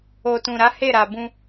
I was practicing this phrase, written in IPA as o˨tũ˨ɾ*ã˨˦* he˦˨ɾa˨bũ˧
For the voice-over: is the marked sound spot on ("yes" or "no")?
no